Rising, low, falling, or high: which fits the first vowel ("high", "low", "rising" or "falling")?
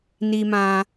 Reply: low